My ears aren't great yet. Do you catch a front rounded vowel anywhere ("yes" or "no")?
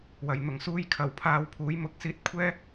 no